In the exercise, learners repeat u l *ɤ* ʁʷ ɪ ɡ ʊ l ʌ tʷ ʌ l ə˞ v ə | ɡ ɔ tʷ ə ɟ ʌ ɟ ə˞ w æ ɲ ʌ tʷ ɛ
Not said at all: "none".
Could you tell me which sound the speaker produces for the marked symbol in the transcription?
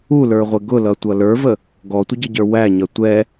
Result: ə˞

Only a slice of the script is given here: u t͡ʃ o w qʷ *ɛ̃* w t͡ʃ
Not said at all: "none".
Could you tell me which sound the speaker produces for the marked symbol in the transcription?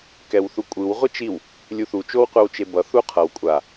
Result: ɛ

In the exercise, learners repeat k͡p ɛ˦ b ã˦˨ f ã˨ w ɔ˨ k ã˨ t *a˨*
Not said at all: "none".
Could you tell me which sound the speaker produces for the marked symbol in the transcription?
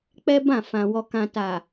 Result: a˨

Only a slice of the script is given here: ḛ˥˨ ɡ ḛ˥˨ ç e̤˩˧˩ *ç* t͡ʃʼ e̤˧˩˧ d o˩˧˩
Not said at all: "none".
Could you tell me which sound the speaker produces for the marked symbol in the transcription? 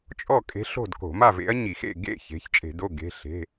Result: ç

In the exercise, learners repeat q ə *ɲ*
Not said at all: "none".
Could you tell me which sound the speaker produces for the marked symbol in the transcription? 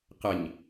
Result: ɲ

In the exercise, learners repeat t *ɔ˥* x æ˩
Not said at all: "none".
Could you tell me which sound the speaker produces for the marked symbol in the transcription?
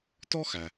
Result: ɔ˥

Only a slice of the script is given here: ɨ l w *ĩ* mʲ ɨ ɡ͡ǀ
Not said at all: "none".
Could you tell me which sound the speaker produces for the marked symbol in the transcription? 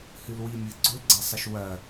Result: i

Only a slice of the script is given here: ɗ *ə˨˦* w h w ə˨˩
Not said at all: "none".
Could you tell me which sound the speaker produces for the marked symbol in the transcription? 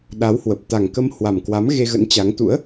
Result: a˨˦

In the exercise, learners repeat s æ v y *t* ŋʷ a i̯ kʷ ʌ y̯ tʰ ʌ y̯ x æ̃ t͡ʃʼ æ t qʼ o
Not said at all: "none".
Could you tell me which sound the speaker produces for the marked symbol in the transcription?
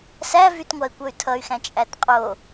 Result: t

